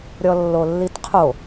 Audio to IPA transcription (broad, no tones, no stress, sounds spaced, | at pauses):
ɾʲ ɔ lː o lː i t qʰ o